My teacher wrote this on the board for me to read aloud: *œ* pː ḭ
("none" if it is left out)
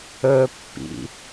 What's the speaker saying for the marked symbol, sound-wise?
ɵ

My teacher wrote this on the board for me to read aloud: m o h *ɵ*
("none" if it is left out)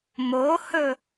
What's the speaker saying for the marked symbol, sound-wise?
ɵ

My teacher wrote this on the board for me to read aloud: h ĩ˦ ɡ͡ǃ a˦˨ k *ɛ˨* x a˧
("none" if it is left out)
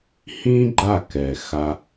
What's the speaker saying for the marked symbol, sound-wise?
ɛ˨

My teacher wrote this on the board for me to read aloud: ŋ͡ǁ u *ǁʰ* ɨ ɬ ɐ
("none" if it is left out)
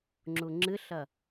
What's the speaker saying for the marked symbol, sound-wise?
ŋ͡ǁ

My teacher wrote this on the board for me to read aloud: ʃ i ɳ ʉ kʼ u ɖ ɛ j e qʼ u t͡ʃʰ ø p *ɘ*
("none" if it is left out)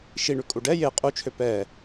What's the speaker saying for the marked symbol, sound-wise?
ɛ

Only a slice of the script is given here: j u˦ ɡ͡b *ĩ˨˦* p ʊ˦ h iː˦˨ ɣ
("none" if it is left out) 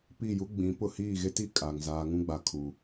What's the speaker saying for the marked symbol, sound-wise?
ĩ˨˦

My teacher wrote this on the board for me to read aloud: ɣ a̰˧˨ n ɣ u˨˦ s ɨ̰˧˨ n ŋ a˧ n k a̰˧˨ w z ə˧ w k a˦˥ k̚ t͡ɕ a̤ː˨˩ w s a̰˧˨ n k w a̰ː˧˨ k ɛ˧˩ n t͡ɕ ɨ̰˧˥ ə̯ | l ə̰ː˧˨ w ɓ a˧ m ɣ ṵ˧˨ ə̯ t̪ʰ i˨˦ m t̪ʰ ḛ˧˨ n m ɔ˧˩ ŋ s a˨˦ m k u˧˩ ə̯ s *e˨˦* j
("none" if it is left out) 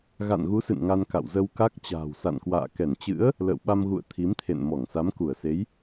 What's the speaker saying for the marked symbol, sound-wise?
e˨˦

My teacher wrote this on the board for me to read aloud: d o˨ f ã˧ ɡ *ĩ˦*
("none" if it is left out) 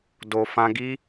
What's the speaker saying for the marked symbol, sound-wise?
i˦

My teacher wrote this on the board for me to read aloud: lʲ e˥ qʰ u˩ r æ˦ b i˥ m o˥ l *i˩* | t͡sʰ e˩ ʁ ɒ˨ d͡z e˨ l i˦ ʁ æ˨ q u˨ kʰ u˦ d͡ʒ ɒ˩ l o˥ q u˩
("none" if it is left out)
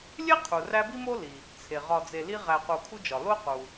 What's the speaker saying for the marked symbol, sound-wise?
i˩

